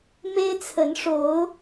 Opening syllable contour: high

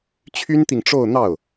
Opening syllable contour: high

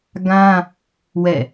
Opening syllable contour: high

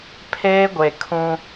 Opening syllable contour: high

